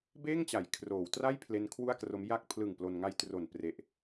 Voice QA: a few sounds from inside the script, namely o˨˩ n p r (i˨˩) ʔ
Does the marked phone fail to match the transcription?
yes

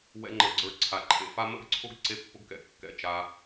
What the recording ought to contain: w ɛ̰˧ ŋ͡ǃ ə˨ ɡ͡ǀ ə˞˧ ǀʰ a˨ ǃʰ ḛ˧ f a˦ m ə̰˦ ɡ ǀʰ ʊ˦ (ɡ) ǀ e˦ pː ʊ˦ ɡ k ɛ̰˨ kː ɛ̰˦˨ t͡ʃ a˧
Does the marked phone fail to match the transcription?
no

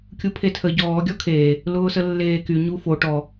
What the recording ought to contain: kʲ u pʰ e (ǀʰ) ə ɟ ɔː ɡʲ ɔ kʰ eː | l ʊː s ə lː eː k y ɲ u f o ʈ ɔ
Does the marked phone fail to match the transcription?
yes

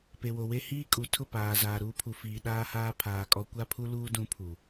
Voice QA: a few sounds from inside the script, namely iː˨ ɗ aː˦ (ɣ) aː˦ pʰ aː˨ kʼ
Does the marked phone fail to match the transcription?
yes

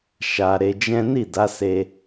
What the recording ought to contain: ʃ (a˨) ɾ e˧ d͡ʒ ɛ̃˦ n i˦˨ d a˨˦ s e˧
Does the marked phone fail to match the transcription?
yes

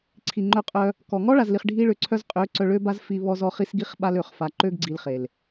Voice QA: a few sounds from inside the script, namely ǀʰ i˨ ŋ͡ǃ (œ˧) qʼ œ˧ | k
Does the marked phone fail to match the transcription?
no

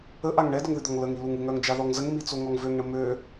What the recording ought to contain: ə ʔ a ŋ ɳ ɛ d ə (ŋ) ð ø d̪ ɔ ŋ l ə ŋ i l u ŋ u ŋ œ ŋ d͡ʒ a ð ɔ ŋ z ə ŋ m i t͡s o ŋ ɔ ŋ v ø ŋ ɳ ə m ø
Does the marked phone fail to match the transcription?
no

